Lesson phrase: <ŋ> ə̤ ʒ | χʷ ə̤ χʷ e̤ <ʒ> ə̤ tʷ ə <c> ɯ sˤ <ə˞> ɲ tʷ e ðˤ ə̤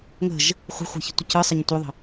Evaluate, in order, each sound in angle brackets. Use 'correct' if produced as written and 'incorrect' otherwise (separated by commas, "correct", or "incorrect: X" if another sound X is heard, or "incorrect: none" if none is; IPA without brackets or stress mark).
correct, incorrect: ç, correct, incorrect: ə